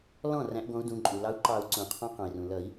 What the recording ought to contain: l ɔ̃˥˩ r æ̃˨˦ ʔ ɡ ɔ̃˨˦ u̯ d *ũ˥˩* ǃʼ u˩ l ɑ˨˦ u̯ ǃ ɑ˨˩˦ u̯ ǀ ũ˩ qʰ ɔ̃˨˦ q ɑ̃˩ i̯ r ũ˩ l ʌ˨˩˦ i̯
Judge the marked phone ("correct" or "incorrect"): incorrect